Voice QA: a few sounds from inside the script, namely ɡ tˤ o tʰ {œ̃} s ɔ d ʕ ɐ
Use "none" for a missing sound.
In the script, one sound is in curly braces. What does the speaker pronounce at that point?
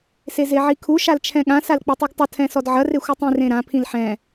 ɛ̃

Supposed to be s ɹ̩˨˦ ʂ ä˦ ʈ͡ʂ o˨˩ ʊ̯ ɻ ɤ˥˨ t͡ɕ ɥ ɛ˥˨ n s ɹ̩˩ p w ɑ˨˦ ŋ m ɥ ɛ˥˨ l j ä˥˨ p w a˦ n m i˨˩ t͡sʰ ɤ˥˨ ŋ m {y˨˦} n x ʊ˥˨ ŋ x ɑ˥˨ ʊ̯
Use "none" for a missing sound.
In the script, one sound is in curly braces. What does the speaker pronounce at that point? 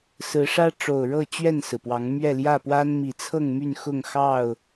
y˥˨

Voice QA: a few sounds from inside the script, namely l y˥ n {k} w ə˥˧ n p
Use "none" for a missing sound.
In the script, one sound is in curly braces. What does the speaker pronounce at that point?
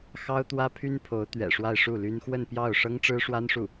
x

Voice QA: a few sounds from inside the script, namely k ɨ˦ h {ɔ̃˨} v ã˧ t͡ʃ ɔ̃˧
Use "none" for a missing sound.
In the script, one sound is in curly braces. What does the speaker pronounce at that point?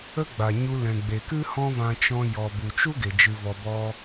ɔ̃˦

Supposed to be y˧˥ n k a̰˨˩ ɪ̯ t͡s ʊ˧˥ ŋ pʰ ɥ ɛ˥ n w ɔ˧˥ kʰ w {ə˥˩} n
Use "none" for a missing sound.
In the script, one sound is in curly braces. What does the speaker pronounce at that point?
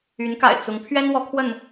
ə˥˩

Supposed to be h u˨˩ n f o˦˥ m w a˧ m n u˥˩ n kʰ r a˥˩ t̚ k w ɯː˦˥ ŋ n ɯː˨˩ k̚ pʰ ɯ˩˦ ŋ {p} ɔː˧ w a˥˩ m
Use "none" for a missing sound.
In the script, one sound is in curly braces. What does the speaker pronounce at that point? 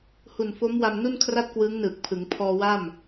pʰ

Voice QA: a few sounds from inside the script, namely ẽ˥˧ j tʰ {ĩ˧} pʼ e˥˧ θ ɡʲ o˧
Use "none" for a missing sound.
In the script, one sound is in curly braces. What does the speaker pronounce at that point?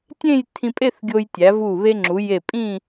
ĩ˧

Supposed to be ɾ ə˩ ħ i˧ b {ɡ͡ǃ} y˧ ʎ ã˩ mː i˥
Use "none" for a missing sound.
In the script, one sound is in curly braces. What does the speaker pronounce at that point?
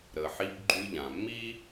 ɡ͡ǃ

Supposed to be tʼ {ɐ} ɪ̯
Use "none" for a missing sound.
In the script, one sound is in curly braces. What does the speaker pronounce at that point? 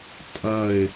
ɐ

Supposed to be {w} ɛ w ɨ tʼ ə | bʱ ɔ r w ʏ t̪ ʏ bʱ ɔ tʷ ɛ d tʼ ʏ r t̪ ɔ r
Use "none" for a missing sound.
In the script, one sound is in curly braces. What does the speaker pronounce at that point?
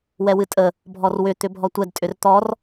w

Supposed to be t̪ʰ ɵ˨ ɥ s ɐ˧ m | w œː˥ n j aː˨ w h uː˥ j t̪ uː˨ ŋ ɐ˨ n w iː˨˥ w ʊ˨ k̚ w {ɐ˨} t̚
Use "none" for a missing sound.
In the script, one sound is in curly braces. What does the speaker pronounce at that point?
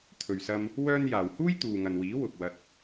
ɐ˧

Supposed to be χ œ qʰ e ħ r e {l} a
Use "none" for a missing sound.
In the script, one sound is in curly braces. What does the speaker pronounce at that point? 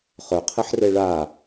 ɭ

